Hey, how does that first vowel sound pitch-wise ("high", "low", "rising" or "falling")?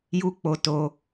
high